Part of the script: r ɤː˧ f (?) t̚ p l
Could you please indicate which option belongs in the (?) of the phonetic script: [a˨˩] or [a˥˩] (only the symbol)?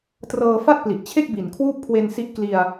a˥˩